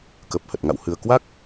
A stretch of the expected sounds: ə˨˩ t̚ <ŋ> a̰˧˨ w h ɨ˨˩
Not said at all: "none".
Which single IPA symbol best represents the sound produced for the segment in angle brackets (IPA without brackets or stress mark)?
ŋ